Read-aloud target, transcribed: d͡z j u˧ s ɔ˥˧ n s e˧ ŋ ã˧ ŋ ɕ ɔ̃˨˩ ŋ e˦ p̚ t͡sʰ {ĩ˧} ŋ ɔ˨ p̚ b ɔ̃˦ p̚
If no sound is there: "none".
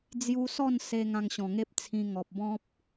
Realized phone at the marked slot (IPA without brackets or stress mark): ĩ˧